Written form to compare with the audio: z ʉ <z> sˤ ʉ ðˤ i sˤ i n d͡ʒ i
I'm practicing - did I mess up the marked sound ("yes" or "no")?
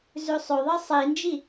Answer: yes